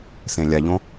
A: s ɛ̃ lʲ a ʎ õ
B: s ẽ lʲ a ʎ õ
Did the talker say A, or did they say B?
B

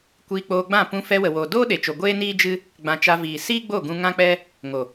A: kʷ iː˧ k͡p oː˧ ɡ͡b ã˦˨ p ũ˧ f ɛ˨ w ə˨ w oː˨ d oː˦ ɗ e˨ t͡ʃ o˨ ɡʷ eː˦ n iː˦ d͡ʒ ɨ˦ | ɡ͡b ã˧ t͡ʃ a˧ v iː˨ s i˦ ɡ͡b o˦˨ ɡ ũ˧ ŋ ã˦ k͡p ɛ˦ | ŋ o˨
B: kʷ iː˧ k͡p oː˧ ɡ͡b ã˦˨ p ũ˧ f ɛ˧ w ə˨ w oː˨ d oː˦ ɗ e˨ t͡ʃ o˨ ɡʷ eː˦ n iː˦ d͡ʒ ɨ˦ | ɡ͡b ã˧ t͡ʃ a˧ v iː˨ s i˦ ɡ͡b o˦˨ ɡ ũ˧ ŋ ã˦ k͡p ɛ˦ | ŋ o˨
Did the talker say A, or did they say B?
B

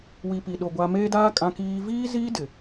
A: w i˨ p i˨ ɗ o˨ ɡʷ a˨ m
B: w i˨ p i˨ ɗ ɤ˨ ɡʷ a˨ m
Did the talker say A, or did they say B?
A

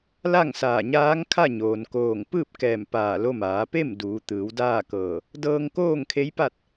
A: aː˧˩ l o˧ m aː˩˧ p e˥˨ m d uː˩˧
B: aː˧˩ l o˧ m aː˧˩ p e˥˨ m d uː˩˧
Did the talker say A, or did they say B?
A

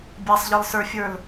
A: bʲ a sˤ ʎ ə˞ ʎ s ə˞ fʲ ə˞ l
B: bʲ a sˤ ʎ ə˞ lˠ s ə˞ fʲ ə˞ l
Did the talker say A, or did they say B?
B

